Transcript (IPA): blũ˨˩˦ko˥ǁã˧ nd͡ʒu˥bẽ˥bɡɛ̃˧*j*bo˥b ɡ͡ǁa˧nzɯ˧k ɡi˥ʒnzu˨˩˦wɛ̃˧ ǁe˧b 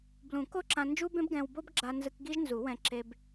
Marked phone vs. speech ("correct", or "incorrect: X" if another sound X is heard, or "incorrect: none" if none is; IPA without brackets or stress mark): incorrect: w